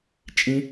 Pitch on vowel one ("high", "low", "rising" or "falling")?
high